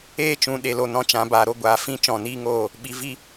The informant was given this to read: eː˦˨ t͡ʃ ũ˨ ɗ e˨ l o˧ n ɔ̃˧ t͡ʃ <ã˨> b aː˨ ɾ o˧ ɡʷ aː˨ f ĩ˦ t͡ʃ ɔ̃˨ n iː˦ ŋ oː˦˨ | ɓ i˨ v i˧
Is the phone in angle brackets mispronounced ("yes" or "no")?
yes